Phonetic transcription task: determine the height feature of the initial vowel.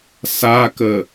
low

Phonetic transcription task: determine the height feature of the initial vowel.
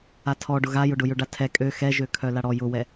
low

